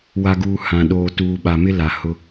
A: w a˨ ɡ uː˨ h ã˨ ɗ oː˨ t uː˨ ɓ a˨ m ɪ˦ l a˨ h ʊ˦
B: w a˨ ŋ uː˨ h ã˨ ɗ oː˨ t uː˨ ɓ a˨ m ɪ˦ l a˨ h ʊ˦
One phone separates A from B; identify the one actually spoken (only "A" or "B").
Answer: A